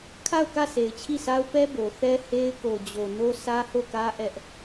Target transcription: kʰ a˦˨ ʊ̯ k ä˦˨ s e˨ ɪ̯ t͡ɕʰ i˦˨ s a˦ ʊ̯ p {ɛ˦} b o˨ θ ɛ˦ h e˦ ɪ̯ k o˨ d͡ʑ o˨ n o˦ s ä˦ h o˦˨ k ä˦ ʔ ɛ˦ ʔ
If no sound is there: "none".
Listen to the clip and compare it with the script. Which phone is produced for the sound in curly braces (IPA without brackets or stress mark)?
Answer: ɛ˦